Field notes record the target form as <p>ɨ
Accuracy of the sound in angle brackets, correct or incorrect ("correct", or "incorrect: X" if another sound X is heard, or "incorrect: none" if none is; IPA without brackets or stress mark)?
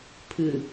incorrect: pʰ